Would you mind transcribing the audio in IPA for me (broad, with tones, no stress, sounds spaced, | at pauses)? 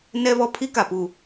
n ɛ˦ β ɔ˦ pʰ i˦ k a˨ p u˨